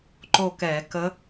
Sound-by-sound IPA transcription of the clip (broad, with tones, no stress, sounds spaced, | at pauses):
ǃ o˦˨ k ɛ˧˩˧ k ə˧˥